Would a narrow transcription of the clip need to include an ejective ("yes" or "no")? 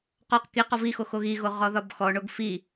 no